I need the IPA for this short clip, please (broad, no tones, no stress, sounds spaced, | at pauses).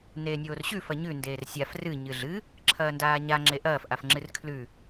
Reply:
n eː nʲ oː r ɕ ʉ f ɐ ɲ ʉ n d eː r sʲ a f r ɨ ɲ ɨ ɮ ɨ | ǁʰ ɐː n d aː ɲ a ŋ͡ǁ e ʔ ɐː f ʔ a f ŋ͡ǁ ɨ r kʰ l ʉ